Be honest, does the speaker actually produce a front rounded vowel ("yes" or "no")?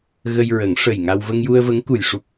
no